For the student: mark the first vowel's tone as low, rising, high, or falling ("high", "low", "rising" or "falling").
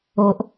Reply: low